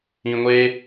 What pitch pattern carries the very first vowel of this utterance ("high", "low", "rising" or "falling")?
low